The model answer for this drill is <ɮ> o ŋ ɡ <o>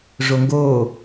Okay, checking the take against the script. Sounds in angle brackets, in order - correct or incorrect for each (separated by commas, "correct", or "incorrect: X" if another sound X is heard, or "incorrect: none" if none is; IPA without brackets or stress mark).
incorrect: ʐ, incorrect: oː